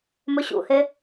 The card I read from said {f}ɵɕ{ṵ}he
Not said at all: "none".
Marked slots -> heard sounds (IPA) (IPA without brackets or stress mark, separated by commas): m, ṵ